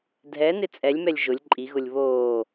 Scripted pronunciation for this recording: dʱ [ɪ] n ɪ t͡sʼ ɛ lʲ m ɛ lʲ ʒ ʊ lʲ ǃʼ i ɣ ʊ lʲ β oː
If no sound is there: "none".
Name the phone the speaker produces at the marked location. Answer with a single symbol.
ɛ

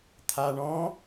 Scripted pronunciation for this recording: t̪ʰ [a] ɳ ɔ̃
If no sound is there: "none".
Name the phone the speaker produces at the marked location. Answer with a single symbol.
a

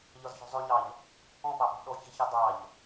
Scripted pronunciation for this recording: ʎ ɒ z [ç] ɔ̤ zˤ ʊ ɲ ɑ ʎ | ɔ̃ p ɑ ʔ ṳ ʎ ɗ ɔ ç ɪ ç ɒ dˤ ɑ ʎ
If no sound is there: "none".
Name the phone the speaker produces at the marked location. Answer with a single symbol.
ç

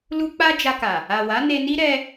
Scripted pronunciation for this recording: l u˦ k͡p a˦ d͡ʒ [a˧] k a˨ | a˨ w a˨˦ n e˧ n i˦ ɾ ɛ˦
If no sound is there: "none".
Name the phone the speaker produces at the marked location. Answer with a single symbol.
a˧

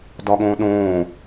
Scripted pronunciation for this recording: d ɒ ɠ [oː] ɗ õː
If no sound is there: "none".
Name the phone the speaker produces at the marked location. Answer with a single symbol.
õː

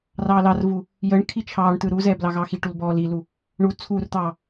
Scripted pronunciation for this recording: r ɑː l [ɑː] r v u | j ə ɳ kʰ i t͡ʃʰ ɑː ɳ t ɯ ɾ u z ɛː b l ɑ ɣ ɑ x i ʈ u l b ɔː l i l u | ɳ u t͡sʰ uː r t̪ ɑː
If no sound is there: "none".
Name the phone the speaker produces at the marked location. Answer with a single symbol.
ɑ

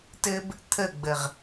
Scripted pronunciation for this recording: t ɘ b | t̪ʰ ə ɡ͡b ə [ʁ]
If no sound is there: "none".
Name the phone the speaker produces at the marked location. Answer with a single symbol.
ʁ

